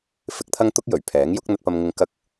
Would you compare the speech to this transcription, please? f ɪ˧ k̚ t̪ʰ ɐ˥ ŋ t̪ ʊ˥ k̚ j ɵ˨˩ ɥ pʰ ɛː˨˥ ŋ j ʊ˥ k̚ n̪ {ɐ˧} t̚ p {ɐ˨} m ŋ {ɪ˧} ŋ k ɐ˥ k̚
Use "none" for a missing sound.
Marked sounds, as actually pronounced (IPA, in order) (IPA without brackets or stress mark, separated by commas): ɐ˧, ɐ˧, ɪ˧